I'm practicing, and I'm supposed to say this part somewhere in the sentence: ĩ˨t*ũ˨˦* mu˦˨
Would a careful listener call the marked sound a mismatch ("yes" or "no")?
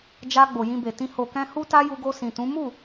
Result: no